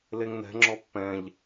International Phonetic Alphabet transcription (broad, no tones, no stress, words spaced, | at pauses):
leŋnɛ̤ŋ͡ǁɔ pːɛ̃ʎ